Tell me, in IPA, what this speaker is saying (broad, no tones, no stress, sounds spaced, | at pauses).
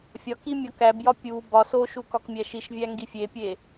fʲ ɒ k i mʲ ɒ k æ b j ɒ pʲ u b ɒ s o ʃ u k ɒ k mʲ æ ʃ i ʃ vʲ æ ŋ ɡ i fʲ e pʲ e